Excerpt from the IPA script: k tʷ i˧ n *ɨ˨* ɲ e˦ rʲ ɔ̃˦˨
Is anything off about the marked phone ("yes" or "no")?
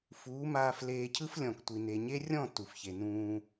yes